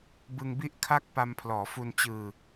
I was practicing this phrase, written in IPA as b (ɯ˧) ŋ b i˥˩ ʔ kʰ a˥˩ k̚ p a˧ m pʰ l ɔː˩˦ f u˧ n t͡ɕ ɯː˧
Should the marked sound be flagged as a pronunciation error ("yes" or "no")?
no